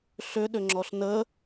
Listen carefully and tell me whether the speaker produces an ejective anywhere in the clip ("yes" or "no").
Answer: no